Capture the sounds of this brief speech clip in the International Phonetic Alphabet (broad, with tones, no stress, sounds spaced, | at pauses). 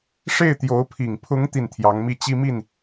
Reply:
ʂ e˥˩ ɪ̯ t̪ j o˧˥ ʊ̯ pʰ i˨˩ ŋ pʰ ʊ˧˥ ŋ t̪ i˥˩ n t̪ʰ j ɑ˧˥ ŋ m i˥˩ t͡ɕ i˥ m i˥˩ n